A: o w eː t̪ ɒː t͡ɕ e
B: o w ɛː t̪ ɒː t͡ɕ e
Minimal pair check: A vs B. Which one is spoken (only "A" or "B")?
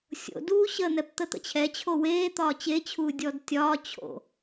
A